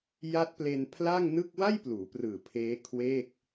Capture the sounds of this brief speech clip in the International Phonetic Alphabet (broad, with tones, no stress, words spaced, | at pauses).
ja˦˥t̚ple˧npʰla˥˩ŋnɯ˥˩k̚ wa˥˩jpluː˩˦prɯː˨˩ pʰeː˦˥kʰweː˥˩k̚